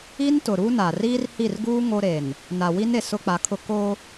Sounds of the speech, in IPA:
i˦ n t ʊ˨ ɾ u˦ n a˨ r iː˦ r h i˦˨ r ɡ uː˦ ŋ o˦ ɾ e˨ n | n a˨ w i˦ n e˨ s ʊ˦ k͡p a˨˦ kʰ ʊ˦ k o˦

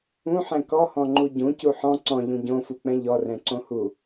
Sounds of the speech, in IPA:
ũ ħ ɛ̃ k ɔ h ɔ̃ ŋ͡ǃ u ɟ ũ c u ħ ɔ̃ ǀ ɔ̃ ʎ ũ ɟ õ f u k͡p ɛ̃ ʎ ɔ r ɛ̃ ǀ õ h u

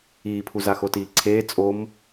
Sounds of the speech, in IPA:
iː pʰ u z a x o t iː ǀʰ eː t͡sʼ o m

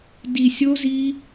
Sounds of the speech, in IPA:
d i˧ sʲ o˦ z i˦

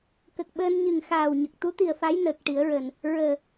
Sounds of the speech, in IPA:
k ə˨˩ k̚ ɓ əː˧ n ɲ ɨ˨˩ ŋ x aː˨˩ w ɲ ə˨˩ k̚ t̪ u˧˥ t̪ i˨˩ ə̯ f a˧˥ j n əː˨˩ k̚ ʈ i˨˩˦ ə̯ ɹ əː˨˩ n | ɹ əː˨˩

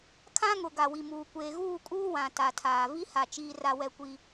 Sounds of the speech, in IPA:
kʰ ã˦ ŋ ʊ˨ ɡ a˨ w i˨ m uː˨ kʷ eː˨ ɣ uː˦˨ kʼ uː˦ w ã˨ t a˨ tʰ aː˨ v i˦ h a˨ t͡ʃ iː˦ r a˦ w ɛ˦ kʷ i˦

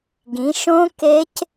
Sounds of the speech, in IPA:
ɡ ĩ˨˦ ʃ õ˦˥ k e˦˥ c

